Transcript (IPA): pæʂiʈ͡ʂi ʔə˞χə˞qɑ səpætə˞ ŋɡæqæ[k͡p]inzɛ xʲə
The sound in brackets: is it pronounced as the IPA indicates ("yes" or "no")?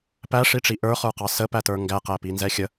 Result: no